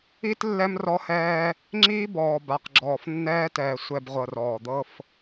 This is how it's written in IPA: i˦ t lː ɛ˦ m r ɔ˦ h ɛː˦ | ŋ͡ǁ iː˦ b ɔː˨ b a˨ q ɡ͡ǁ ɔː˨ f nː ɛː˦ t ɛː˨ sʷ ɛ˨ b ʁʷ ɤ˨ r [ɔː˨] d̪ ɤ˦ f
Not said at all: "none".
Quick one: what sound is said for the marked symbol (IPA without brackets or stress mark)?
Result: ɔː˨